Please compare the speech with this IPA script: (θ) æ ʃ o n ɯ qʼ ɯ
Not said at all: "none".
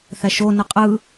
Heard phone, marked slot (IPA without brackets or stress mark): θ